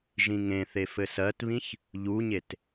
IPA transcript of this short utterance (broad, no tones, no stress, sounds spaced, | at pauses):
ʒ ĩ ŋ ẽ θ e f ɘ s ɜ t β ĩ ç | ʎ u ɲ e t